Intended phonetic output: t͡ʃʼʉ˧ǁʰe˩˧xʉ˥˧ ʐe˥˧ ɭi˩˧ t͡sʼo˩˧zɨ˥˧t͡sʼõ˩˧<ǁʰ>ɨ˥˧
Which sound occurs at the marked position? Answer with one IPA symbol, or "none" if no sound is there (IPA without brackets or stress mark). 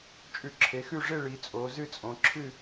ǁʰ